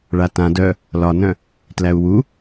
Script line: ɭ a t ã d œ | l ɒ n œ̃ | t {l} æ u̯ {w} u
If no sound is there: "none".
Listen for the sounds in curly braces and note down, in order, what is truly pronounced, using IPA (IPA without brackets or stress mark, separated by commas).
l, w